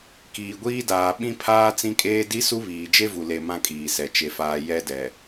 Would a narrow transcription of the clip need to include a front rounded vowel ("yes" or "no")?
no